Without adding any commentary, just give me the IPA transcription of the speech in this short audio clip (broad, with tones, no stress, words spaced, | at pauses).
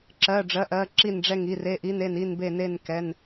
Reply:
ǁɜ˧˥˧ɖ͡ʐɜ˧˥˧ʔɜ˧˥˧ ǁi˦˨nɖ͡ʐɛ˦˨ŋ i˧˥˧ re˧˥˧ʔi˧˥˧n e˦˨ni˦˨nbe˦˨ne˦˨n kɛ˧˥˧n